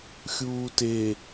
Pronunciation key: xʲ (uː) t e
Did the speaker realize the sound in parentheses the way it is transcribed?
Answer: yes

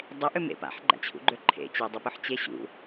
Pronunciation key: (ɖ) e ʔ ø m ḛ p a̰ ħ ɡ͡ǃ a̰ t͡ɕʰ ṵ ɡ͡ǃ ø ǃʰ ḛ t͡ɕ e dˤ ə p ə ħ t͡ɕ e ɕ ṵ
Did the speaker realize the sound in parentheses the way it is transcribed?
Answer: no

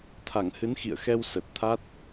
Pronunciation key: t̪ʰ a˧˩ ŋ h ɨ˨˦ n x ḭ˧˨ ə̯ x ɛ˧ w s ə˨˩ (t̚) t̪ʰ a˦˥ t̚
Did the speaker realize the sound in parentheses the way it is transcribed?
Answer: yes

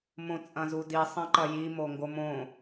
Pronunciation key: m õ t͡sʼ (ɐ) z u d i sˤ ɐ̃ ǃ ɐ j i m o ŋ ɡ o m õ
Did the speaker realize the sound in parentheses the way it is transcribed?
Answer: no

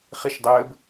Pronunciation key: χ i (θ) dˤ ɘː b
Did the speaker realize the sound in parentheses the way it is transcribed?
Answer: no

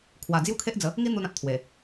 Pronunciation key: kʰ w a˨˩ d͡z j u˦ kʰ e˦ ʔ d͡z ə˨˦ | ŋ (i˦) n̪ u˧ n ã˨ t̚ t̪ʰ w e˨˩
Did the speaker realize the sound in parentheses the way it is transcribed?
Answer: yes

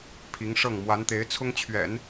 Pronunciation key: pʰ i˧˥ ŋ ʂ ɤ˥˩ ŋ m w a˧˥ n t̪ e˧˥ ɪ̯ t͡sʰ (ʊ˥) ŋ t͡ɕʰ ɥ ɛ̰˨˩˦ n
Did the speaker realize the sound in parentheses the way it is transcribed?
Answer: yes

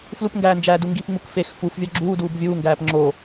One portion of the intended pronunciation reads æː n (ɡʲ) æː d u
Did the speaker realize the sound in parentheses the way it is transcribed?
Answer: no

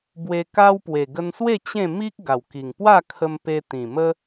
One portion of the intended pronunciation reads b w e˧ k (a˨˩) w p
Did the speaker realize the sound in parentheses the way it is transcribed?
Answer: no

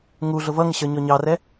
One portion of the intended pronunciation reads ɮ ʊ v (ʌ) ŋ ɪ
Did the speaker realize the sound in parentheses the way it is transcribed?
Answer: yes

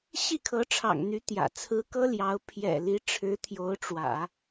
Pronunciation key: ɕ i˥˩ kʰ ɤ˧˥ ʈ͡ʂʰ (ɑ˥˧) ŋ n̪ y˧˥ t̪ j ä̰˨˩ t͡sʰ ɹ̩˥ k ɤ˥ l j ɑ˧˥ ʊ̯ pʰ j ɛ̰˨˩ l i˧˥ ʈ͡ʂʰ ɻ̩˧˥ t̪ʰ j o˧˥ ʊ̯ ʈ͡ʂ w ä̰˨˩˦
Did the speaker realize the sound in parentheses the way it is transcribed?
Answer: no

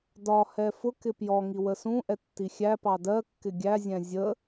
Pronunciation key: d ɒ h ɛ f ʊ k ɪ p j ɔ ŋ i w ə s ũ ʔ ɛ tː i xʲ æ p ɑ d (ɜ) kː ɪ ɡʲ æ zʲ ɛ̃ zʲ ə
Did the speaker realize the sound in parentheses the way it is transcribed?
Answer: yes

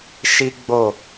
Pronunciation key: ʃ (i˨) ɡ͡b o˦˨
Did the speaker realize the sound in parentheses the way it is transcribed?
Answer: no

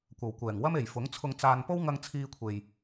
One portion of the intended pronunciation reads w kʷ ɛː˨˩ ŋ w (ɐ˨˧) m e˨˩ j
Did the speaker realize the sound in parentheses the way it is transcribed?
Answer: no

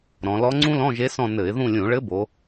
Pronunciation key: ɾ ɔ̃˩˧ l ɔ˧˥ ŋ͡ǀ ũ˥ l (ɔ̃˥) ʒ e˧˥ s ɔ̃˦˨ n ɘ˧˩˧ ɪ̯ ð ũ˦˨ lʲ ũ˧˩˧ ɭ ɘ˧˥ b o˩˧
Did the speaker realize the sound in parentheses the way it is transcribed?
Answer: no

